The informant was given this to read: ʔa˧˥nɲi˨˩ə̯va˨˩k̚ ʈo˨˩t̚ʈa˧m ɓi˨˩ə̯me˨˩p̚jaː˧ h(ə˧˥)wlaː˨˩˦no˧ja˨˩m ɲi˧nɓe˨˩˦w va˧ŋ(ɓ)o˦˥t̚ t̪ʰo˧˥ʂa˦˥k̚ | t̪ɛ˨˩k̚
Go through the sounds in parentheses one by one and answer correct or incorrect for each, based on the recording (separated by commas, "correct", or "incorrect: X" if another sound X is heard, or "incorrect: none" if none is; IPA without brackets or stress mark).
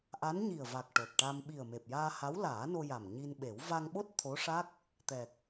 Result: incorrect: a˧˥, correct